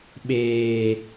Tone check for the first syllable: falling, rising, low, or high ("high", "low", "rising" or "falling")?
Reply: low